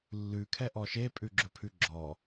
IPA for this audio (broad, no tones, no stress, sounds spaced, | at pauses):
lː ʉ kʰ ɛ ʔ ɔ ʃ e pʼ ʉ ɡ͡ǁ ɵ pʰ ʉ ɡ͡ǁ ɔ